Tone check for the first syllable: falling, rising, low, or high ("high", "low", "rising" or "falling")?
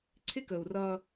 high